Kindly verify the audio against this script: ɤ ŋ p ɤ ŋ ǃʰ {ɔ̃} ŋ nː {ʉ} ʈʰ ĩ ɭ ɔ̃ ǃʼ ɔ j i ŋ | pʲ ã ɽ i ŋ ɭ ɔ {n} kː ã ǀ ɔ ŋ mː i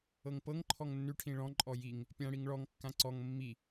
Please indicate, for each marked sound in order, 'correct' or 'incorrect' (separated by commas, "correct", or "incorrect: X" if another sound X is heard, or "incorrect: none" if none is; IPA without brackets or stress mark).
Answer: incorrect: ɔ, correct, incorrect: ŋ